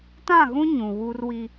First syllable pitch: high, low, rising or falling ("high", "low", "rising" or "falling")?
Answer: falling